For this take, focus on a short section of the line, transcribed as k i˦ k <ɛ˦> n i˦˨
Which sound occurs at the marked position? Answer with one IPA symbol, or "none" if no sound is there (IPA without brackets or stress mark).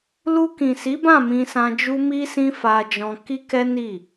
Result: ɛ˦